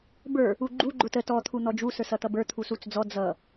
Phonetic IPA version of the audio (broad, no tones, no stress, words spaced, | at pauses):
bə˞ | uɡ͡ǃu ɡ͡ǃʊtə tɔ t̪ʰun̪ɔd͡ʒu sə˞sʌt̪ʌbə˞ t̪ʰusut͡sd͡zɔ d͡zʌ